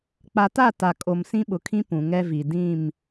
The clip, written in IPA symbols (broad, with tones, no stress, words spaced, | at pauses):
k͡pa˨ta˦˨ ta˨kʼo˨m sĩ˦ɓʊ˨kʰĩ˦ pũ˨ŋɛ˦vi˨ dĩ˦˨m